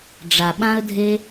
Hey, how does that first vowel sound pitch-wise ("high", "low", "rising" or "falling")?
low